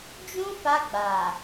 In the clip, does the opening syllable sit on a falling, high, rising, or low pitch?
high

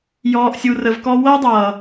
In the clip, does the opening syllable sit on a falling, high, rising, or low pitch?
low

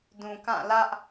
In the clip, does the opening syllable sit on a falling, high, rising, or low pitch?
low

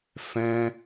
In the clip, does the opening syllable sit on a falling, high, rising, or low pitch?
high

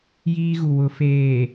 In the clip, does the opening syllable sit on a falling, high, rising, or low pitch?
high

